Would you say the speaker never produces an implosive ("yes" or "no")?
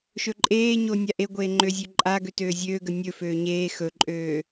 yes